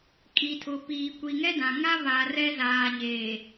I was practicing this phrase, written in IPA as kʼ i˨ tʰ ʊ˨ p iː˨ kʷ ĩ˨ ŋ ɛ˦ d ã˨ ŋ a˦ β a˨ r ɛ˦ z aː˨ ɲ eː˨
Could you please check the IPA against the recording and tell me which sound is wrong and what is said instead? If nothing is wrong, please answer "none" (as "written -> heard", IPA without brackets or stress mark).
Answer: ĩ˨ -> i˨